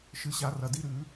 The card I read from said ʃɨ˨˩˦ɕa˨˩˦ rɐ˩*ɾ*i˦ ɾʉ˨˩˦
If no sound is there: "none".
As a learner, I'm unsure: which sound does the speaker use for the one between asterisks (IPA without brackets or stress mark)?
d